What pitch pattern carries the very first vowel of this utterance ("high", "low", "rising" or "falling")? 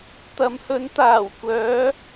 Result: rising